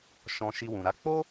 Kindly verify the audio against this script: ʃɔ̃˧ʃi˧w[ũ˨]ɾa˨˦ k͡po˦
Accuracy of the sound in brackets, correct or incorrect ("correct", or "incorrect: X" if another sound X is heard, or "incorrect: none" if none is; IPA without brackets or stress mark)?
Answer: correct